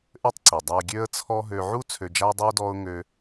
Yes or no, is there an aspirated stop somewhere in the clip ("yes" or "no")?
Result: yes